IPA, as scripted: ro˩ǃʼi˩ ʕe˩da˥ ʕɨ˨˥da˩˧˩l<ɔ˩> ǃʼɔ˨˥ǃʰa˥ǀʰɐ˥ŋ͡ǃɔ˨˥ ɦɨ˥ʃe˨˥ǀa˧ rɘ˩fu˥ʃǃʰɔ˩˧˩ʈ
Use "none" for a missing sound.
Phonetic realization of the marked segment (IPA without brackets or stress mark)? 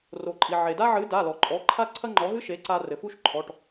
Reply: ɔ˩